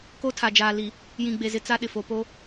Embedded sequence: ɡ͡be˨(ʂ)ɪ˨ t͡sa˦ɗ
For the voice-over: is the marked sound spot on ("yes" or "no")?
no